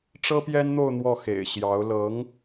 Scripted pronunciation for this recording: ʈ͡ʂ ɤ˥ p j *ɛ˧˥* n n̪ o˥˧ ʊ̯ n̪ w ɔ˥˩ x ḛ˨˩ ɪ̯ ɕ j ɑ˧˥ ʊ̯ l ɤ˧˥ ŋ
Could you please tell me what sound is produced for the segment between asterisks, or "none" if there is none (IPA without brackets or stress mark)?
ɛ˥